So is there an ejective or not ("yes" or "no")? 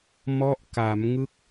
no